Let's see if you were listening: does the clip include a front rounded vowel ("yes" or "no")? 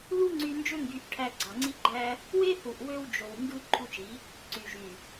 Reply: yes